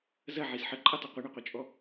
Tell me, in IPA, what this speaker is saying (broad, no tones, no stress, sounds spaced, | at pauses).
z ɐ ʕ i z ħ ə ǃʼ ɐ tˤ ʏ qʷ ə ɳ ɐ qʷ ɐ t͡ʃʼ ɔ